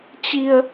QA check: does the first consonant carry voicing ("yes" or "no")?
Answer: no